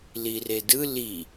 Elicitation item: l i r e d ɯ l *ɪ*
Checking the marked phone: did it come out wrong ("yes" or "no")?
yes